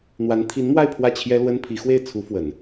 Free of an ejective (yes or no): yes